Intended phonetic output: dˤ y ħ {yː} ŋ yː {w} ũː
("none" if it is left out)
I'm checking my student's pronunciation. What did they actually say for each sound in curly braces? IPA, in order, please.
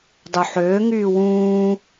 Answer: øː, w

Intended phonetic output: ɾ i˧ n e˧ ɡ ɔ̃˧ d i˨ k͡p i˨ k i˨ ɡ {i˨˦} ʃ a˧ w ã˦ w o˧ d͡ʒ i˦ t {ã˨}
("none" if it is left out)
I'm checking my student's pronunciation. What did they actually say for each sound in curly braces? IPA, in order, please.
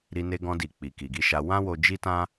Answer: i˨˦, ã˦

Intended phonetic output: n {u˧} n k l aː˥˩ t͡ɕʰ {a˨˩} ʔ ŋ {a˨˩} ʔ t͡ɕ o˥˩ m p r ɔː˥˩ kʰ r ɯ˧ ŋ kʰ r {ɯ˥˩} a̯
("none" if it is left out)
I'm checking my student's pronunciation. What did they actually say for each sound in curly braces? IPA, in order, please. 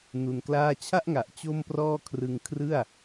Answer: u˧, a˥˩, a˨˩, ɯ˥˩

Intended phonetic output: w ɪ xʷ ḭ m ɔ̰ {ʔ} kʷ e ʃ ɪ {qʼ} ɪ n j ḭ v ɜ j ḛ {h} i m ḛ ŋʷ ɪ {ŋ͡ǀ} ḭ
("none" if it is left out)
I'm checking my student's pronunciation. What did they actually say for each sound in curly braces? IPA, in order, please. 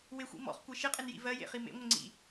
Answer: χ, qʼ, χ, ŋ͡ǀ

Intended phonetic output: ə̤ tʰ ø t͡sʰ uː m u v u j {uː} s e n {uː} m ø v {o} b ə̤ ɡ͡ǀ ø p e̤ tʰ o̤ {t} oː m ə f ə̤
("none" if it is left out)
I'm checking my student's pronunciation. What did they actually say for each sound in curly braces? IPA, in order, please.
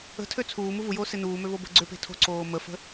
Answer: oː, uː, o, ǀ

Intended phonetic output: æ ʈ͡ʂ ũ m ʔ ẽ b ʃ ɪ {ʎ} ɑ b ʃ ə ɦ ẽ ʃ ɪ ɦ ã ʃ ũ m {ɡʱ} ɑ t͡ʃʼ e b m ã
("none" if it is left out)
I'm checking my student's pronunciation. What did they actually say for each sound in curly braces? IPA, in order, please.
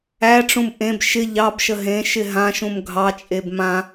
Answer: ʎ, ɡʱ

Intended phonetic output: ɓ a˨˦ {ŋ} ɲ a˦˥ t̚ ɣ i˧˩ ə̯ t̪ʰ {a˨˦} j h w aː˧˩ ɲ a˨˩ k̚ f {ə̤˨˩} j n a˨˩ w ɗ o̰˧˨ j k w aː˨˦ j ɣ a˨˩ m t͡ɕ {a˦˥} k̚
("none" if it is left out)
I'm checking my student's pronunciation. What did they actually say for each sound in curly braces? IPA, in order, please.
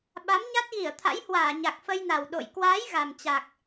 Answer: m, a̰˧˥, ə˧, a˨˩

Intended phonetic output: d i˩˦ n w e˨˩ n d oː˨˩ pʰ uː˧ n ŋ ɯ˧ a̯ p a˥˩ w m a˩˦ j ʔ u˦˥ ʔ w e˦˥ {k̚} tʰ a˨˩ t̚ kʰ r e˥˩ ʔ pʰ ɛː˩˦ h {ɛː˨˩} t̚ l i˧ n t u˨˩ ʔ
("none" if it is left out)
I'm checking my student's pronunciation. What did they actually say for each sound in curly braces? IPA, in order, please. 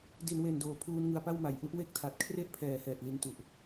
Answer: k̚, ɛː˨˩

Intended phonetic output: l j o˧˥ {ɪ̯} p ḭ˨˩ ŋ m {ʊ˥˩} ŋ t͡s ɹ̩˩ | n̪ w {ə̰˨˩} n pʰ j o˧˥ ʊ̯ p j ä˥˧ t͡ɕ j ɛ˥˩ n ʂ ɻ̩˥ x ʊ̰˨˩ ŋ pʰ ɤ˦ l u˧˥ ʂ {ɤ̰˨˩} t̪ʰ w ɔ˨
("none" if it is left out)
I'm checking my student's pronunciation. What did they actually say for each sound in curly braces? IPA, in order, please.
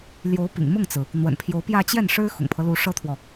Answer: ʊ̯, ʊ˥˩, ə̰˨˩, ɤ˥

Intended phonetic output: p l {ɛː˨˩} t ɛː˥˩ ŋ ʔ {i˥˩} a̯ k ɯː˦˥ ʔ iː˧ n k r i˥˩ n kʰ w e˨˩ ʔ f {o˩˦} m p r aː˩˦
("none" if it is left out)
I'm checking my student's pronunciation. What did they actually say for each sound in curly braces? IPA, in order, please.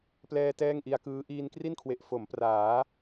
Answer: ɛː˧, i˧, o˩˦

